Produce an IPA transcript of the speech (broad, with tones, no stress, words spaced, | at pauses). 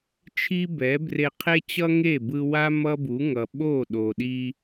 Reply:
t͡ʃʰi˥bɛ˩˥bre˧ qʰe˥t͡ɕʌ˥ŋe˥˩ bɯ˧wa˥ mʌ˥bu˩˥ ŋʌ˩ɓo˥˩ɗo˩ ɗi˧